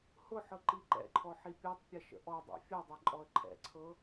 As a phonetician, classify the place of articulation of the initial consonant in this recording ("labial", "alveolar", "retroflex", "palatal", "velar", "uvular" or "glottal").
glottal